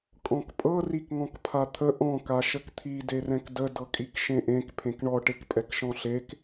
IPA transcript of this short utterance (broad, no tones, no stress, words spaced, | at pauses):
kʼɔ̃kpʼɤ rikŋɔ̃kpʰat̪ʰə ʔɔ̃ kaʃəkt̪ʰi derɛ̃kdə dɤkʼikʃẽʔẽk pʰẽkɳɔ ʈekpʼɛkʃɔ̃ɬek